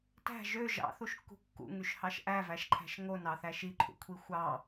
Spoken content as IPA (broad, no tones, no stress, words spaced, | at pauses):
tæ̤ ʒø ʒɑ̰θuʃkːṳ kːṵŋyʃhɑʃ ʔævæʃǃʰæ̤ʃ ŋonɑθæ ʃiǃʰṵkʷʰi xʷɑ